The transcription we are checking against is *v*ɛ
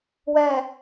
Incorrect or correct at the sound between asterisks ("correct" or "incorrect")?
incorrect